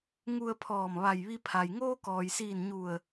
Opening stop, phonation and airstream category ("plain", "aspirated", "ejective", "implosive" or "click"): aspirated